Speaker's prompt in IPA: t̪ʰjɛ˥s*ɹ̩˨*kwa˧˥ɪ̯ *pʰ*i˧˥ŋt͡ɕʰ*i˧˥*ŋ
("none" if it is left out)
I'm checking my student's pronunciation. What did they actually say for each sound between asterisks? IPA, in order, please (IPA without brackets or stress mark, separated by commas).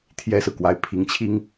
ɹ̩˨, pʰ, i˥